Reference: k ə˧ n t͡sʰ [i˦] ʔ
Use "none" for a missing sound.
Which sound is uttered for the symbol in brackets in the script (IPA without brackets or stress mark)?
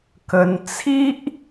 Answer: i˦